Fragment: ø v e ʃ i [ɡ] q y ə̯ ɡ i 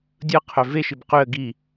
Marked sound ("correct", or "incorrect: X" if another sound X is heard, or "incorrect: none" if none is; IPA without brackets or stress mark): incorrect: b